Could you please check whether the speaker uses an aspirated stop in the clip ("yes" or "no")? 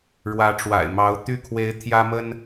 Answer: yes